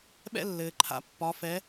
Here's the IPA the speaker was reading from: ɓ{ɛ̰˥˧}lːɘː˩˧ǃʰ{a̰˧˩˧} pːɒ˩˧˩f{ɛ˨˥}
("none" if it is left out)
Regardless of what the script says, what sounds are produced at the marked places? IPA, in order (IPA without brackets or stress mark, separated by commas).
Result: ɛ̰˥˧, a̰˨˥, ɛ˨˥